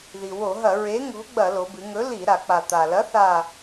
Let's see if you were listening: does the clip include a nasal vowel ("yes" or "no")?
no